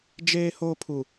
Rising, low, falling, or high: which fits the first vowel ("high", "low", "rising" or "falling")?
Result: high